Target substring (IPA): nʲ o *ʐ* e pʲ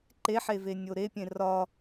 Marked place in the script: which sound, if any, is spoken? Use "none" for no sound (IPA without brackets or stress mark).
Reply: ɾ